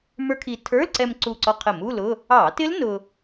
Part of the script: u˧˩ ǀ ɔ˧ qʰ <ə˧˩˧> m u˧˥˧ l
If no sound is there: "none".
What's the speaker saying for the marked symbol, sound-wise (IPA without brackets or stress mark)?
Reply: ə˧˩˧